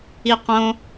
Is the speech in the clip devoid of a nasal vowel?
no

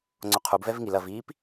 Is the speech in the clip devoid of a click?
no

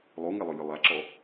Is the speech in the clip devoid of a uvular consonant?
yes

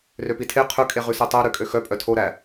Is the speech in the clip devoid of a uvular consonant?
no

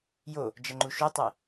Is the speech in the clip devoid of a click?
no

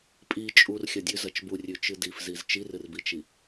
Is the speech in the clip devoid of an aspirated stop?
yes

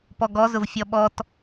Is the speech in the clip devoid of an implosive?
no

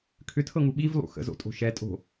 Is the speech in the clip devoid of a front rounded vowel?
no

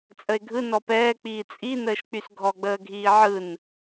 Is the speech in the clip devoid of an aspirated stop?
yes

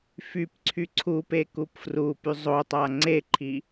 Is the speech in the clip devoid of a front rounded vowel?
no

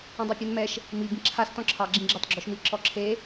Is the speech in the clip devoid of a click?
no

